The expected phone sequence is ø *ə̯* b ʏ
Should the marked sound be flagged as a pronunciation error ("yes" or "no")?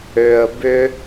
no